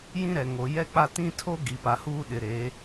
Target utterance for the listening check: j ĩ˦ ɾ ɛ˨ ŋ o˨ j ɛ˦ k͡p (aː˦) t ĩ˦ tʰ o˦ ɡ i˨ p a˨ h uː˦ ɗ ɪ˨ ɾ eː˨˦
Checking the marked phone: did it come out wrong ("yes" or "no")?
yes